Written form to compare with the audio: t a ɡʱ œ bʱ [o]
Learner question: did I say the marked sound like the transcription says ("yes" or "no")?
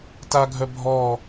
no